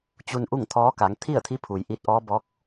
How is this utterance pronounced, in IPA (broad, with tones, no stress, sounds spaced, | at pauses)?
t͡ɕ u˧ n ʔ u˥˨ ŋ t̪ʰ ɔː˧˥ k a˩˧ ŋ t̪ʰ i˥˨ ə̯ t̪ʰ i˧˥ pʰ u˩ j ʔ i˧˥ t̚ ʔ ɔː˧˥ b ɔː˧˥ k̚